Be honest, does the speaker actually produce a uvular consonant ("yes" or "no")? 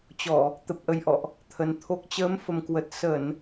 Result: no